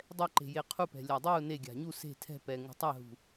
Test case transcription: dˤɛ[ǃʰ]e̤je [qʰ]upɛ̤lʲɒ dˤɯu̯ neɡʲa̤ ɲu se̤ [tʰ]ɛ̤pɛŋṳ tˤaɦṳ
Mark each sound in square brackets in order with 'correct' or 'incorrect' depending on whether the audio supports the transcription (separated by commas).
incorrect, correct, correct